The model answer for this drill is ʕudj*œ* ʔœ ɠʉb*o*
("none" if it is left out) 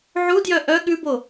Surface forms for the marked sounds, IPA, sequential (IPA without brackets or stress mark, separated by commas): œ, o